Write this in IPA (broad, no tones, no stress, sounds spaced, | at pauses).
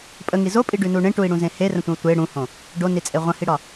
pʼ ə ŋ i z o pʼ i ɖ ʉ n u ɳ ẽ ʈ u i̯ ɽ ũ z ẽ h e r ə̃ tʷ ə̃ u̯ tʷ e ɽ ũ h õ | ɖ o n i t͡sʼ e ʁʷ ə̃ h i ɽ ɒ